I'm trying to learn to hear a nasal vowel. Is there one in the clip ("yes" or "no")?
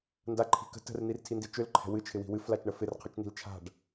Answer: no